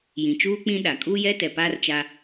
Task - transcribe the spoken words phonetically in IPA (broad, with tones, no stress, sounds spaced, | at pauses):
j ĩ˨ t͡ʃ uː˦ k͡p ĩ˦ ɗ a˨ kʼ uː˦ j ɛ˦ t ɛ˨ p aː˦ r t͡ʃ a˦